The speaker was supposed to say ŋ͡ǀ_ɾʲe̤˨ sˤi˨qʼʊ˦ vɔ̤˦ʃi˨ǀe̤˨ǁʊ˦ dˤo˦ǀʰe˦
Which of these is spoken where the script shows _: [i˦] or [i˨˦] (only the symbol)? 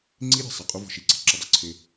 i˦